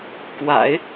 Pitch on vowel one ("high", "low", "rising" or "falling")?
low